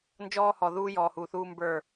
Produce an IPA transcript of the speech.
n d͡ʒ ɔː˦ h ɔ˨ ð uː˦ j ɔː˨ h uː˨ θ uː˦ m b ə˞˦˨

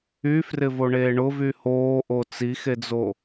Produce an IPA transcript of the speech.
y f r ɪ v o ɳ eː ɳ ʊ v y h oː ʔ o t͡s i x e d͡z o

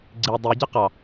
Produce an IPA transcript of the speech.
ɡ͡ǀ i dˤ i ɟ ɜ q ɑ

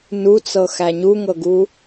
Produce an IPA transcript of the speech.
n u t͡s ɤ x æ ɲ u ŋ ɤ ɡ u

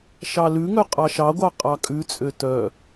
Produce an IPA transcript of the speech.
ʃ ɑ l ʉ ŋ œ qʼ ɑ ʃ ɑ ɡʷ ɑ qʼ ɑ kʼ ʉ t͡sʼ ø t œ

